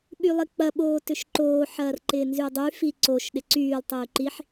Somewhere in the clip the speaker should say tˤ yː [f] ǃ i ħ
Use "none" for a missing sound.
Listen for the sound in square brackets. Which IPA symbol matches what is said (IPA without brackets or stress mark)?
none